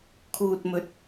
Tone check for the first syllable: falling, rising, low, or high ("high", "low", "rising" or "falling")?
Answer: low